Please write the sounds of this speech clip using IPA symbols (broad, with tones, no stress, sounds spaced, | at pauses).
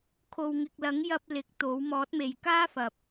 kʰ o˨ w ŋ ɪ˨ k̚ l ɐ˨˥ ŋ j ɐ˧ p̚ l ɪ˨˥ k̚ t̪ o˨˥ w m ɔː˨˥ t̚ m e˨ j k aː˥ f ɐ˨ p̚